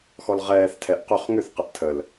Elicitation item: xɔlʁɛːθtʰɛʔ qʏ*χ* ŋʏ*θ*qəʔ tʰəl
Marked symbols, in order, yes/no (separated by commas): yes, yes